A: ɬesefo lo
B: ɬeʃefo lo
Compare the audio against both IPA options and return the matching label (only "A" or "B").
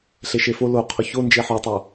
B